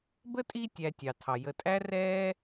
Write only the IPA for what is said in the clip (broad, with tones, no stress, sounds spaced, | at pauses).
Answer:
b ə˥ tʼ i˦ tʲ æ˨ tʲ ɑ˩ tʰ ɑ˩ j ə˨ tʼ æ˥ r ɛː˥